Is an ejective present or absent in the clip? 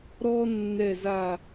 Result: absent